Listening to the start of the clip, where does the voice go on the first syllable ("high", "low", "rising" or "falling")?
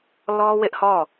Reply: high